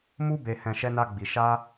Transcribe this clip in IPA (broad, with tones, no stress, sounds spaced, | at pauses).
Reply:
m u˧ b e˨ h ɛ̃˨ ʃ ɛ˧ n a˧ ɡ͡b i˨ ʃ a˧